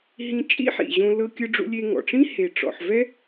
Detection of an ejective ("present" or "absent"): present